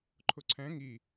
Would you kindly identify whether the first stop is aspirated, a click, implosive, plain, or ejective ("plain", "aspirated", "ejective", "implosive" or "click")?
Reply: click